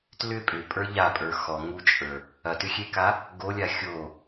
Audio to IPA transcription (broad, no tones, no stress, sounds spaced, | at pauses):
t l ʏ pʼ ʏ pʼ ə˞ ʎ a pʼ ə˞ x ɔ ŋ u t͡ʃʼ ə˞ | ɐ t ʏ xʲ e k a | ɡ o lʲ a xʲ o